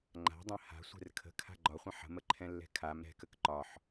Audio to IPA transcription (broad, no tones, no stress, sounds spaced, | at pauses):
ŋ͡ǃ a̤ dˤ ɛ̃ h a̤ sʷ ɛ̤ r kʰ ə̤ kʰ a̤ ɡ͡ǃ ɒ χʷ ə̃ ħ ə̤ m ə ǃʰ ɛ̃ lː ɛ̤ kʰ a m ɾ ɛ̤ k ə k ǃ ɒ ħ